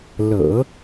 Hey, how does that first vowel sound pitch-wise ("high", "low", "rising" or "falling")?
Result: low